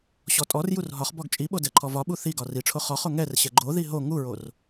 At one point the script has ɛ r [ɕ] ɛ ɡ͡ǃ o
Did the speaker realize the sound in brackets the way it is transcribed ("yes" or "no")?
yes